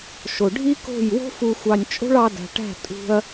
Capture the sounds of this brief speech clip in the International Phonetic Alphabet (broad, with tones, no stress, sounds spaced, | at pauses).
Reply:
ʃ o˨ ɖʱ i˦ k o̤˦˨ j w o̤˦ f u˨ xʷ ɑ˨ nʲ t͡ʃʼ o̤˦ ɭ ɑ˧ d æ̤˨ ʈ æ̤˦˨ tʼ ṳ˧ ɐ̯